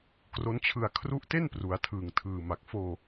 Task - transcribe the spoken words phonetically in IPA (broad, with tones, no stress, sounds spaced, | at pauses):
k r o˦˥ n t͡ɕʰ ɯ˧ a̯ kʰ r u˦˥ ʔ t e˥˩ n p r u˩˦ a̯ tʰ ɯː˨˩ ŋ tʰ ɯː˨˩ m a˨˩ k̚ f oː˧